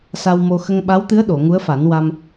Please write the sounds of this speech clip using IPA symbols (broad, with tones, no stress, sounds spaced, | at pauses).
s a˧ w m o˧ x ə˧ ŋ ɓ a˧˥ w t̪ ɨ˧˥ ə̯ ɗ o˨˩˨ ŋ u˧˥ ə̯ f a˨˩˦ n w a˧ m